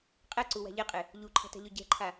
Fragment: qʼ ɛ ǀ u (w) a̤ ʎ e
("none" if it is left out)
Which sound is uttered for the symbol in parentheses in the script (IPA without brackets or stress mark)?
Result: w